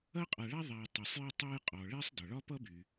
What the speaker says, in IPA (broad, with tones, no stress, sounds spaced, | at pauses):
ɐ˥ qʼ a˨ ɭ a˥ ðˤ a˨ j tˤ y˩ sˤ j ɐ˦ tˤ a˦ j qʼ ɔ˩ ɭ ɛ˥ sˤ d ɒ˩ ɭ ɒ˥ p ʌ˥ b y˩